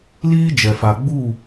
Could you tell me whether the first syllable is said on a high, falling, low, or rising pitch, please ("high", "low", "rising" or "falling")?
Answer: high